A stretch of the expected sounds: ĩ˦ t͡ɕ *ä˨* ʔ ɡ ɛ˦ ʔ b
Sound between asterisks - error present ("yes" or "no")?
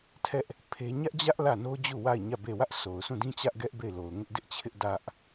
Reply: yes